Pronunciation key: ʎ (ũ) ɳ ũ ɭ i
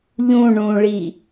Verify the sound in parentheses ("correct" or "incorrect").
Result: correct